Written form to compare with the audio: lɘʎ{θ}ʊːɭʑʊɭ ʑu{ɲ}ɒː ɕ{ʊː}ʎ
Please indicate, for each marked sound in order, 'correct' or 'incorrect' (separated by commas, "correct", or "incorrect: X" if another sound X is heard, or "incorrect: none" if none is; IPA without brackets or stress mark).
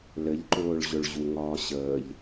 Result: incorrect: ǃ, incorrect: ŋ, incorrect: əː